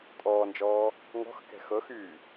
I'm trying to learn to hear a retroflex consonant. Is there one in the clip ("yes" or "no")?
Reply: no